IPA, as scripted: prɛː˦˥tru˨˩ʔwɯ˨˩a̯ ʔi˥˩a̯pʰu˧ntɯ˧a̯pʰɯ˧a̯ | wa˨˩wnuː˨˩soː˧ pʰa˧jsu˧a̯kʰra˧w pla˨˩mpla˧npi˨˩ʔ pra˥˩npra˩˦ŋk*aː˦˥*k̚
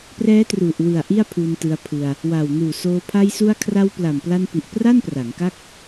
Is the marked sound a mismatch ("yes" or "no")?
yes